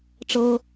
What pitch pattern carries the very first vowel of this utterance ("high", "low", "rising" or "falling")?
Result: high